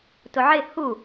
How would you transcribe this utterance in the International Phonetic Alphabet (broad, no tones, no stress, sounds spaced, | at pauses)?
t ʊ ʕ ɪ h u